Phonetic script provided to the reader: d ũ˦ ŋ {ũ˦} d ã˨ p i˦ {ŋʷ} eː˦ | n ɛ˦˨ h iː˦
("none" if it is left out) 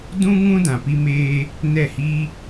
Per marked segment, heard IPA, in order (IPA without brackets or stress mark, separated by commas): ũ˦, m